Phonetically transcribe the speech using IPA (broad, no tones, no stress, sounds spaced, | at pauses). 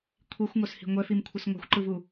kʷʰ i xʷ ŋ o s h i̤ ŋʷ ɛ f i m kʷʰ ɯ s ŋʷ a̤ xʷ ǃ ɯ v u